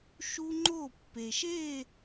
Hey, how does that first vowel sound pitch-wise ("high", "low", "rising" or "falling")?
high